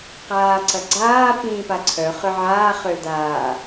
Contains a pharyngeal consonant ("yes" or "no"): yes